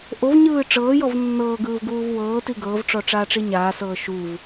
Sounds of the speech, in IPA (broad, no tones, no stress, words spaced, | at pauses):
ʔovɲɯː ʈ͡ʂɤːjɔv nːɤːɡɯːv ɡuːvwɤːti ɡɤːvʈ͡ʂɔ ʈ͡ʂaːʈ͡ʂiɲaːsɤː ʃuv